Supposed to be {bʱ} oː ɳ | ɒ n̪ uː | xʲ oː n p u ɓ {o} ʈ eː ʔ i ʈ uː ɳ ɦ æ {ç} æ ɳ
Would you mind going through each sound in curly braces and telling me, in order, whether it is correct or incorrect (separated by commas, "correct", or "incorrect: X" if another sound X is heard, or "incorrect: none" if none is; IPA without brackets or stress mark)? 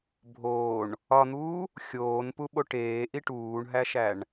correct, correct, incorrect: ʃ